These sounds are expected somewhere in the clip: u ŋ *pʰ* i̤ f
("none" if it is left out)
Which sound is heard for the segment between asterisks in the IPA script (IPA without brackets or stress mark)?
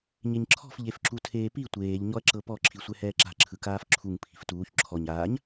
pʰ